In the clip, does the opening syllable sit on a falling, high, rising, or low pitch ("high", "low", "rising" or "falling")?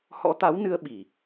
rising